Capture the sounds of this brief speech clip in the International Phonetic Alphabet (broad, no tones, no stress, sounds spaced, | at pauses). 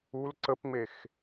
u l ǀ ə p ŋ͡m e x